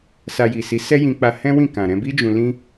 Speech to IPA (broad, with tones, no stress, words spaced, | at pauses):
sa˧ji˨si˨˦ sɛ˦jĩ˧k͡pa˧ hɛ̃˦wĩ˦˨ kã˨ɾɛ̃˧bi˦ d͡ʒũ˧lĩ˦